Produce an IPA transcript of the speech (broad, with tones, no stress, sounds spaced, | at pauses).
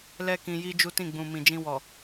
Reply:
l ɛ˦ k ĩ˧ j i˦ d͡ʒ u˦ t ĩ˦˨ ɡ͡b ũ˨ m ĩ˨ d͡ʒ ĩ˧ w ɔ˨